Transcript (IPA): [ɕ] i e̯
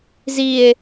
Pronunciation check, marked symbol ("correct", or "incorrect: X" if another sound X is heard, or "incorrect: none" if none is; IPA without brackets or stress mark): incorrect: z